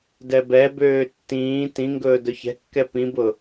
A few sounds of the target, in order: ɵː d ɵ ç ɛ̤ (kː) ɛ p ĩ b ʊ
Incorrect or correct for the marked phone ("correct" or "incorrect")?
correct